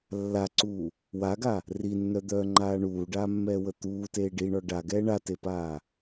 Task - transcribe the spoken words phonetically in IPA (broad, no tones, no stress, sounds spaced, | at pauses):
lː a ǀ uː | w a ɡ a | r i nː œ d̪ œː ŋ͡ǃ aː ɳ uː ɖ aː mː ɛː w ə t̪ uː t eː ɖ i ɳ ɔ ɖ a ɡ ɛː ɳ a t e p aː